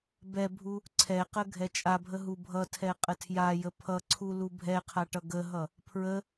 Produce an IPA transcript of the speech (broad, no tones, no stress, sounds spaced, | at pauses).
b ɛ bʱ u | ǀʰ ɛ q ə ɡʱ ɛ t͡ʃʼ a bʱ ə ɦ u bʱ ʌ tʰ ɛ qʼ ə tʰ j a j ə pʰ ʌ ǀʰ u l u bʱ ɛ qʰ a ʈ ʌ ɡ ə ɦ ʌ | pʰ ɹ ə